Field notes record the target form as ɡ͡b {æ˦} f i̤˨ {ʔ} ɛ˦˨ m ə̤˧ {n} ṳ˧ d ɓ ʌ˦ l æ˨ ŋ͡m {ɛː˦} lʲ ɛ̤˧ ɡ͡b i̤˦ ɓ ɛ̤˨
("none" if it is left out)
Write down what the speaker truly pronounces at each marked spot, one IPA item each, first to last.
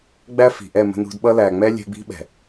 æ˦, ʔ, n, ɛ˦

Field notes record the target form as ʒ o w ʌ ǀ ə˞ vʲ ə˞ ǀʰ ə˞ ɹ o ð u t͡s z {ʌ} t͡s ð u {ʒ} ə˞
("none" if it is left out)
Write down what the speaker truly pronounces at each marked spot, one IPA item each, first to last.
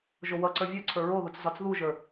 ɒ, ʒ

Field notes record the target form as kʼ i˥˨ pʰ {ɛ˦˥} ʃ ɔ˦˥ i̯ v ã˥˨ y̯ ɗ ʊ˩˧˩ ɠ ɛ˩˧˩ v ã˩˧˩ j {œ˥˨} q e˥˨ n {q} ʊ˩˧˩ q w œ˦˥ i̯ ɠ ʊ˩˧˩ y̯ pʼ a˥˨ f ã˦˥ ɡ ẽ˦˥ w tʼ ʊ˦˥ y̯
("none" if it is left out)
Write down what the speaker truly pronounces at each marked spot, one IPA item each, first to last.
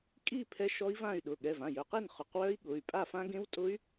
ɛ˦˥, œ˩˧˩, χ

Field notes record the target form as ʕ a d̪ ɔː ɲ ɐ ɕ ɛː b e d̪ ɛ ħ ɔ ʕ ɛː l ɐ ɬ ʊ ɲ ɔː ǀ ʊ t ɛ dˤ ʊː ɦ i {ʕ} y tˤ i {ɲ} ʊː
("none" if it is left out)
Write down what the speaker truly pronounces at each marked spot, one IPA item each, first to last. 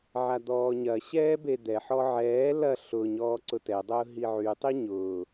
ʕ, ɲ

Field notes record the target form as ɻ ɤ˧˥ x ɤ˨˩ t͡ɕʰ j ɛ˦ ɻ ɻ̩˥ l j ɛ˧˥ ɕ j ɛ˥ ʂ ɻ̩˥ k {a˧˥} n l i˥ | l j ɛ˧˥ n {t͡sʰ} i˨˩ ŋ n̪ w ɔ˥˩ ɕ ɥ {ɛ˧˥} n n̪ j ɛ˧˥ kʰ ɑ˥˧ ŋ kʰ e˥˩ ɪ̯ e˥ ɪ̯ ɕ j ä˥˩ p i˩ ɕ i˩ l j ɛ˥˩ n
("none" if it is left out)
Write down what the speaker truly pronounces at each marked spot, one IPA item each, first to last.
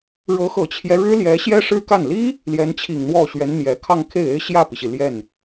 a˥˩, t͡ɕʰ, ɛ˧˥

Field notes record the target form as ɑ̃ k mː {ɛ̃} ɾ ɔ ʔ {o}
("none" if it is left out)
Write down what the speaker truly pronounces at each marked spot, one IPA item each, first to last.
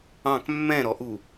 ɛ̃, u

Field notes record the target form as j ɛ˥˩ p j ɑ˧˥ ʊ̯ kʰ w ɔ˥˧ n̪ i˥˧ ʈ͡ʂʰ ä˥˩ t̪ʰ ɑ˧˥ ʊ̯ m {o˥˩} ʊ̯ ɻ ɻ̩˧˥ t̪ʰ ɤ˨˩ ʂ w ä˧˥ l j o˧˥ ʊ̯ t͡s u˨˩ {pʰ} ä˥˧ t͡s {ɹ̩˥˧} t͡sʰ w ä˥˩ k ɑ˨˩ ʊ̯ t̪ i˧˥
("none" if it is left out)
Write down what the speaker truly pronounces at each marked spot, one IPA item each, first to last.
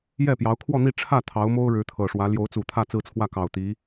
o˥, t̪ʰ, ɹ̩˥˧

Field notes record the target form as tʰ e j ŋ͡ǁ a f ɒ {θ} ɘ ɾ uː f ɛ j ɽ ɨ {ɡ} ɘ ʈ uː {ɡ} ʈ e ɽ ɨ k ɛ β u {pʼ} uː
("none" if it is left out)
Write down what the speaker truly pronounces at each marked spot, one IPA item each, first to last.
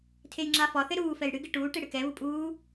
θ, ɡ, none, pʼ

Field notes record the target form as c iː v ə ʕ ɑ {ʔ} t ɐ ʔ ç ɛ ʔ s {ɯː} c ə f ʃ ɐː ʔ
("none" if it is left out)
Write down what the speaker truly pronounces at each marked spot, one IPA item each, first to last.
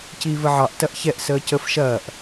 ʔ, əː

